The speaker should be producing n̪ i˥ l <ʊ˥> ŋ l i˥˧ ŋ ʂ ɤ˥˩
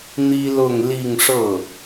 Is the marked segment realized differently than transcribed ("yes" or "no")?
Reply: yes